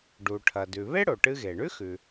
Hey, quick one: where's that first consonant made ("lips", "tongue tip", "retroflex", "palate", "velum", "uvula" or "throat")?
retroflex